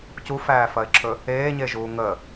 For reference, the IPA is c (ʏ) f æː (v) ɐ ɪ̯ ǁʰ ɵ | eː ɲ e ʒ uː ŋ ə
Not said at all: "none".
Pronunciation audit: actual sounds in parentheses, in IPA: u, f

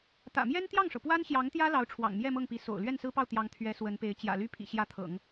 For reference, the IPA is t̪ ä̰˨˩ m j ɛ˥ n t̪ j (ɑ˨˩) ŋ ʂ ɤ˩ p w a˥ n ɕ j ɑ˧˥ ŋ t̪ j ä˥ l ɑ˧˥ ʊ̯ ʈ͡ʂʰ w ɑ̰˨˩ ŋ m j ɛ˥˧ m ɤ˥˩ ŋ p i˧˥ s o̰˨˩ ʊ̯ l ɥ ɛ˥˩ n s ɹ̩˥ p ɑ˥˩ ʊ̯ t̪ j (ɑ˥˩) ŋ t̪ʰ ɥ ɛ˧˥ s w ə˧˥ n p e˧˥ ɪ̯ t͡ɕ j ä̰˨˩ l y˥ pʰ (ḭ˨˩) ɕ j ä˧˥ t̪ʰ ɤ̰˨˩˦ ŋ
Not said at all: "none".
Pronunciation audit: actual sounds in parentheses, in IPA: ɑ˥˩, ɑ˧˥, ḭ˨˩

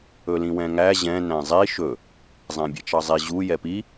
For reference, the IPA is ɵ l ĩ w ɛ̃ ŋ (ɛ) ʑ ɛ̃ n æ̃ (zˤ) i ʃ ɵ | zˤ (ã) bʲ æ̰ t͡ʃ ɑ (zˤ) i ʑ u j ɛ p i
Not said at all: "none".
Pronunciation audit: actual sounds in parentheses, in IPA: æ, zˤ, æ̃, zˤ

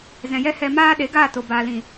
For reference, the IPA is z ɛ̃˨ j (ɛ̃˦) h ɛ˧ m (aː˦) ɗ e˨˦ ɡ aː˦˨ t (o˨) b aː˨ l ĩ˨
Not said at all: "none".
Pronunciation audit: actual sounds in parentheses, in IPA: ɛ˦, aː˦, o˨

